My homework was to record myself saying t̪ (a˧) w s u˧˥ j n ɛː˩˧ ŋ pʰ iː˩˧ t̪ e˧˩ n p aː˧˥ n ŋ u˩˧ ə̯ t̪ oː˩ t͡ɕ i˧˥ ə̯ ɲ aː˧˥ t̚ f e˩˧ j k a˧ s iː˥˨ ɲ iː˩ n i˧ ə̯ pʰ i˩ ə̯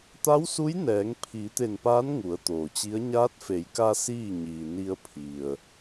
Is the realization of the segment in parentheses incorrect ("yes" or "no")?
yes